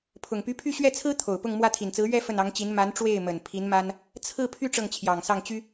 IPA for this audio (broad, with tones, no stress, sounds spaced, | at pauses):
pʰ ʊ˨˩ ŋ p y˧˥ pʰ y˥˧ ɕ ɥ ɛ˥˩ t͡sʰ ɹ̩˥ t̪ʰ o˨˩ ʊ̯ p ʊ˥˧ ŋ m w ä˥˩ t̪ʰ i˨˩ n t͡s ɹ̩˧˥ ɥ ɛ˥˧ f ə˥˩ n ɑ˧˥ ŋ t͡ɕ i˧˥ n m a˧˥ n ʈ͡ʂ w e˥˩ ɪ̯ m ə˨˩ n pʰ i˧˥ n m a˥ n | t͡sʰ ɹ̩˥˧ pʰ y˥˧ ʈ͡ʂ ɤ˥˩ ŋ t͡ɕʰ j ɑ˨˩ ŋ s ɑ˥˩ ŋ t͡ɕ y˥